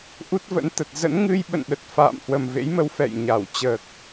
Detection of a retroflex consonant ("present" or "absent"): absent